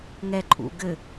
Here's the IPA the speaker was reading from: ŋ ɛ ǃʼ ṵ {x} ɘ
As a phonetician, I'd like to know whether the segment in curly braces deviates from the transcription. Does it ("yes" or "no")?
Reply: yes